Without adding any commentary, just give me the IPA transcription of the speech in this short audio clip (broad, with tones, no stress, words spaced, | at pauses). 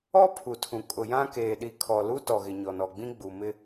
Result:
ɔ˦ pʰu˨tʰũ˨ kʼʊ˨jã˦ keː˨ɗi˨kʰɔ˨ lu˦tɔ˨ɣɪ˨ ɲɔ˨nɔ˨ɡ͡bĩ˦ɡ͡bu˨ mɪ˦